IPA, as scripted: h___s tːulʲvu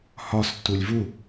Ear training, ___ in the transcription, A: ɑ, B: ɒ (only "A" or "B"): B